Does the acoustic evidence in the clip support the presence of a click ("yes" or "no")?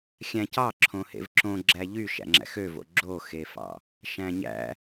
yes